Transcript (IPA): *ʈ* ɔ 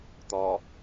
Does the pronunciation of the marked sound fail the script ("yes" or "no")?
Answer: yes